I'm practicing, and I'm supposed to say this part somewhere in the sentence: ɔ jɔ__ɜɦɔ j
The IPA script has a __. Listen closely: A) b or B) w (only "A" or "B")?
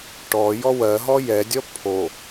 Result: B